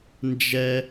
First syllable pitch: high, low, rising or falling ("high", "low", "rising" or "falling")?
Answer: high